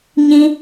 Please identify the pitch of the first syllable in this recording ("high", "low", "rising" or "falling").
high